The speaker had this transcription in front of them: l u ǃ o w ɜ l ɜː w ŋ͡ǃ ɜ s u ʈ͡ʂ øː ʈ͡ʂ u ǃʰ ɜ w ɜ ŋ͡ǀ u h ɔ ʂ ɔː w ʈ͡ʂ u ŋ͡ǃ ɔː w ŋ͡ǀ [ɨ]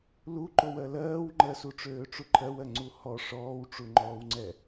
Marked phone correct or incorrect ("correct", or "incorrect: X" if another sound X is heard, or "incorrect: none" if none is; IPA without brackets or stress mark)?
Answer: incorrect: ɛ